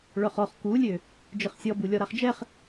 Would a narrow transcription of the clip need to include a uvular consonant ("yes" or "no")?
yes